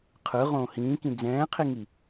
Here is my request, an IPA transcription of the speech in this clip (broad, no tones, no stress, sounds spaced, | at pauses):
qʰ ɯ ʁ õː h ĩː k ĩ d͡z ɛ̃ː qʰ i ŋ i